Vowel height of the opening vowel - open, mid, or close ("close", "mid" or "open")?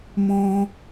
mid